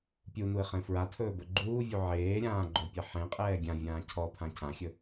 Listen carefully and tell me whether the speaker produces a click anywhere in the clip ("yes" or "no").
yes